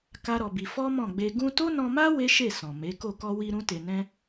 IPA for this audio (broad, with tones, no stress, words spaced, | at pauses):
ka˦ɾɔ˧bi˧ fɔ˦mɔ̃˦˨ɡ͡be˧ ɡũ˧to˦nɔ̃˧ma˦ we˦ʃe˦˨sɔ̃˨ me˨˦ko˦˨ kɔ˧wi˧ ɾũ˦te˧nɛ̃˦